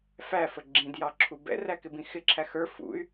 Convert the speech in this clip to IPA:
fæfə ɡ͡ǁĩd jɑǁʰubɛ̰ræ kɪbĩxɪǁʰæ xə˞ fṵy̯

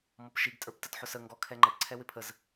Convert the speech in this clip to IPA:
mɔpʃiɡtʼə˞p tətħʊsə ŋɡɔkʰɛ ŋ͡ǃʌpǀʰɛ wɪpʰəz

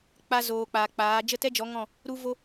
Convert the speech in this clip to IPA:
k͡pa˧zoː˨ k͡paː˨k͡paː˨˦ d͡ʒə˦˨tɛ˦d͡ʒɔ˨˦ ŋɔ̃˦˨ | ɾu˦vo˦

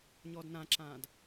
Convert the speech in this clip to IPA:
ɲɔːdnãǁãːd

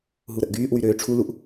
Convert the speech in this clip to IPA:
ɦuɾəʔɡyːʔwy ɾøːʈ͡ʂʰuluʔ

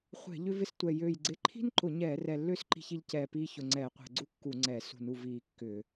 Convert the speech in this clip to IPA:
χʷɛ̤˧˩˧ ʎʏ˥vɪ˥stʷɛ˧˩ jø˧˩j ɡ͡ǀɪ˧˩˧ǃʰi̤˥nǃʊ˧˩˧ɲɛː˧˩˧ rɛ˧˩lːʏː˥s ǃi̤˥çi˥ʎ cɛː˧˩ piː˥ çʊ˧˩ŋ͡ǀɛː˧˩˧qʷɛ̤˧˩˧ ɡ͡ǀu˥kːu˧˩˧ŋ͡ǀɛː˧˩˧ sṳ˧˩˧nu˧˩ viː˧˩kːʏː˧˩˧

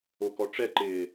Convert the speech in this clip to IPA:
okɔʈ͡ʂɛǃɪː

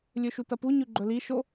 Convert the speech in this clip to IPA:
lʲɵʃutɐpu ɲʉɡ͡ǃɵli ʃo

